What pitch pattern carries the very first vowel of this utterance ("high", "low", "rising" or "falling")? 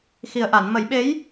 low